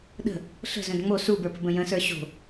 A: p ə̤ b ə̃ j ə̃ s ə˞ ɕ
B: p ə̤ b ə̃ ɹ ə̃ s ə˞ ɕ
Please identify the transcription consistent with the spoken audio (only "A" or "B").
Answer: A